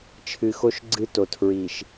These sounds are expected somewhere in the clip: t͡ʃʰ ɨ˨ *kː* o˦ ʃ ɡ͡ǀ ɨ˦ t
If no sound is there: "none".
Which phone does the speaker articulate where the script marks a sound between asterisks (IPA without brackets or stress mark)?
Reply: x